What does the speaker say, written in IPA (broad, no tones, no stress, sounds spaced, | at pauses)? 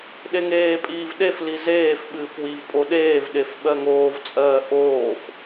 ɗ e ŋ eː pʼ iː v ɗ e f l i z eː f ɓ ɨː f w i v pʼ o ɗ eː v ɗ e f ɓ ɜ ŋ oː v t͡sʼ ɜː ʔ oː f